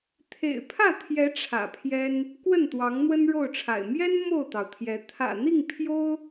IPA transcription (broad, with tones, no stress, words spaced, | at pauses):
t̪ʰḛ˨˩ɪ̯pʰä˥˨t̪ʰjɛ˨˦ ʈ͡ʂʰä̰˨˩pʰjɛ˦n | kwə˥˨nt̪wɑ˨˦ŋn̪wə˦n ɻo˥˨ʊ̯ʈ͡ʂʰa̰˨˩ɪ̯ mjɛ˦n mo˥˨ʊ̯t̪ɑ˩ʊ̯t̪ʰjɛ˨˦ t̪ʰä̰˨˩n̪i˥˨ŋ pʰjo˦ʊ̯